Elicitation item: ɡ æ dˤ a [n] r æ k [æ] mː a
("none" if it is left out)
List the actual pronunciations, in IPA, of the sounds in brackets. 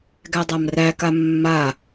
m, a

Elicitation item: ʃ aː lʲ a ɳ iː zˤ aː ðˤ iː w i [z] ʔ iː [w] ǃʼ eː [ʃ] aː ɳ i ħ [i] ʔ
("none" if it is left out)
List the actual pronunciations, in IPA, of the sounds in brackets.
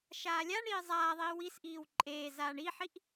s, w, z, i

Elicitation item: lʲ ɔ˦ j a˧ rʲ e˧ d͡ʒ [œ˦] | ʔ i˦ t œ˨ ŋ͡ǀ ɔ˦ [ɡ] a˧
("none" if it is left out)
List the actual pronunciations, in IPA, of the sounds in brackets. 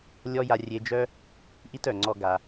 œ˦, ɡ

